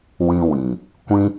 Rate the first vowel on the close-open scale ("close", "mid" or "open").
close